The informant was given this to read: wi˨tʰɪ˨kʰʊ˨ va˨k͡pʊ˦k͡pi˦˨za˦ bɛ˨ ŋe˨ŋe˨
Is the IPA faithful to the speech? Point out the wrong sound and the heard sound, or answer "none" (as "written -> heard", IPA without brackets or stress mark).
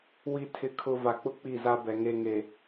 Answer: none